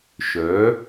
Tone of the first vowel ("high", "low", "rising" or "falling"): rising